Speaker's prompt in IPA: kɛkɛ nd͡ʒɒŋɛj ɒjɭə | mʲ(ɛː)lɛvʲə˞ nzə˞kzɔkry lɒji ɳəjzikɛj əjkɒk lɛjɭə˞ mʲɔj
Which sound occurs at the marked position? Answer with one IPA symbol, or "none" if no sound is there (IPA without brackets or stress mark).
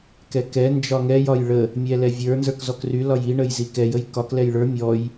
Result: ɛ